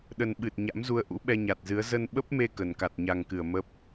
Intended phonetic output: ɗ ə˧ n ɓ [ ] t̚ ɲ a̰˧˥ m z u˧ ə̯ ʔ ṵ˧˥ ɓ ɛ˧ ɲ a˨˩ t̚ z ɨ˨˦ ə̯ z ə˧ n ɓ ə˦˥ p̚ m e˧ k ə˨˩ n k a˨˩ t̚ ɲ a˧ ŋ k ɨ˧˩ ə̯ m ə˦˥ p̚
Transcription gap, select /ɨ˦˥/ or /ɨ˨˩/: ɨ˨˩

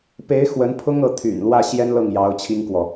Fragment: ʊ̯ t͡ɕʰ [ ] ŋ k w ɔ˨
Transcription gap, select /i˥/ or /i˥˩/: i˥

